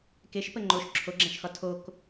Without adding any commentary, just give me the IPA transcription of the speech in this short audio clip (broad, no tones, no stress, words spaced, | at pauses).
keʃpə ŋ͡ǃoʃ ǁʰoɡ͡ǁæ̃ʃxɒ tʰok